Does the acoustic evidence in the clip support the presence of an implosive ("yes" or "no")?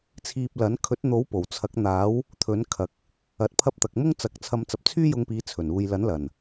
no